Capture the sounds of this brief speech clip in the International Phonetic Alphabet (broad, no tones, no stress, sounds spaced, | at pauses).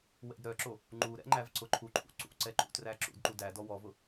w ɛ̰ d ɾ œ ǁ o | ŋ͡ǃ u ɾ ɛ̰ ŋ͡ǃ æ v ǀ ʊ ǃʰ u ǃʰ ṵ ǀ ṵ ǀ ɛ ǃ ṵ t r æ ǁ ṵ d ǃ u d æ d ɔ w ɔ v ʊ